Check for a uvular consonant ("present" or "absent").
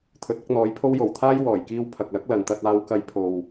absent